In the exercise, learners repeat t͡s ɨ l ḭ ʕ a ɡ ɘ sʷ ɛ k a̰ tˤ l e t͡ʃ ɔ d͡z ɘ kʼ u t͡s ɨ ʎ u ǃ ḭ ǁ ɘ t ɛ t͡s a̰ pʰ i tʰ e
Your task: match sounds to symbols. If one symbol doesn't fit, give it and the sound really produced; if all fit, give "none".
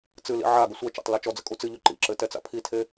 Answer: k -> t͡ʃ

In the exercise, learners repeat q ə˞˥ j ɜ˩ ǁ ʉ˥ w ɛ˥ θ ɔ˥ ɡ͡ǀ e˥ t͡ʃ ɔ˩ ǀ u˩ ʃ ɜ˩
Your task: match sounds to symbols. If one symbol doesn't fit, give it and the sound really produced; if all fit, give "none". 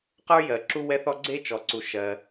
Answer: ʉ˥ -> u˥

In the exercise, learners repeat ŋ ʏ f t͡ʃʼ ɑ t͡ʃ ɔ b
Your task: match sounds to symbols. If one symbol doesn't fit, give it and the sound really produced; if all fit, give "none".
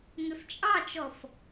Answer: b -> f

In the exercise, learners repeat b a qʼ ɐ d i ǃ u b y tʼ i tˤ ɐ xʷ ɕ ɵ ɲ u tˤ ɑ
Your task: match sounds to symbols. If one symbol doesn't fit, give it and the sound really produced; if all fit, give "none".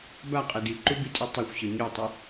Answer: ɑ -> ɐ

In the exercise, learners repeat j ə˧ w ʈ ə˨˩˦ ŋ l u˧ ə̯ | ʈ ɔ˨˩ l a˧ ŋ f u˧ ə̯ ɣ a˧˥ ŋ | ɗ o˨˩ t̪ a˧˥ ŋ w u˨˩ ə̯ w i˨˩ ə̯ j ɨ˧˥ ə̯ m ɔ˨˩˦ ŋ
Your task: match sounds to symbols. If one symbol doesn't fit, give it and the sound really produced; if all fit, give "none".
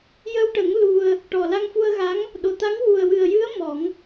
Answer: i˨˩ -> ɨ˨˩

